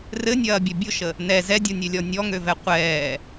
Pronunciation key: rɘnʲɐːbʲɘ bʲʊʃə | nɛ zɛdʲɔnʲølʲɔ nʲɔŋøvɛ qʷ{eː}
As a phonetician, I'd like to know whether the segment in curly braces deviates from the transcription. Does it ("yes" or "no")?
yes